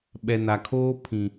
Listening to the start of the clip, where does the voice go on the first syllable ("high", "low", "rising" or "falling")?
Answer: low